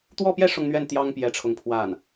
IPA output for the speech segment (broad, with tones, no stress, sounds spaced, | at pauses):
t̪ w ɔ˥˧ p j ɛ˥˧ ʂ ʊ˥˧ ŋ n̪ ɥ ɛ˥˩ n t̪ j ɑ˥ ŋ p j ɛ˧˥ ʈ͡ʂʰ ʊ˧˥ ŋ pʰ w a˥˩ n